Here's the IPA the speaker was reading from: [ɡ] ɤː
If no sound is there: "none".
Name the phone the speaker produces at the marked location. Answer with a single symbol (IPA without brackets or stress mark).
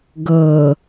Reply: ɡ